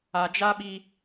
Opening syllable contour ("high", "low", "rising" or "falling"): low